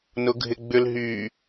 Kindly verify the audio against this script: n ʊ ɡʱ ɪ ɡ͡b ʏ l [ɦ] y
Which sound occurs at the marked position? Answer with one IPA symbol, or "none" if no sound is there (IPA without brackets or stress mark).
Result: ɦ